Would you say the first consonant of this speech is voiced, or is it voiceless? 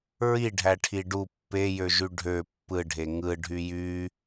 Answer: voiced